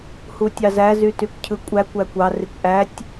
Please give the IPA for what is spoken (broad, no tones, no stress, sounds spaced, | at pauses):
h u tʲ ɑ z æ z y t y kʷ cʰ ɯ kʷʼ æ kʷ æ kʷ ɑ r i kʷ ʔ æ tʲ